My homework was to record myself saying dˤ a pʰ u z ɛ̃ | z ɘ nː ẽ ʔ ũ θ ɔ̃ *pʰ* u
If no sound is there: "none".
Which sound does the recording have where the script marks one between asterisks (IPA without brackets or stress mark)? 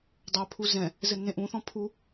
pʰ